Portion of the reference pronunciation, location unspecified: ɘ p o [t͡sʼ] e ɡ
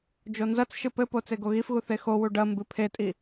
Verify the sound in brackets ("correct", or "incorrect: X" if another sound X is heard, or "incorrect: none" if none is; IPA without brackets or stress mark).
incorrect: t͡s